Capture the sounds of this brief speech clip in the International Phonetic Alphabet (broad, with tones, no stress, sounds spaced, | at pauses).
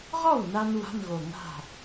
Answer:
ʁ ɔ˥˩ w n a˧ n w a̤˧˥˧ n ɣ o˨˩ ŋ a̤˥˩